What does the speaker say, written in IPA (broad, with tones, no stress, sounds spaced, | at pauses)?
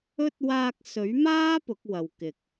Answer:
ɵ˥ t̚ w aː˧ k̚ s ɵ˨˥ ɥ m aː˥ p ʊ˨˥ k̚ w ɐ˨ w k ɪ˨ k̚